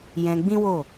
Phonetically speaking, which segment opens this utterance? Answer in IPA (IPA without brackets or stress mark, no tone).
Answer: j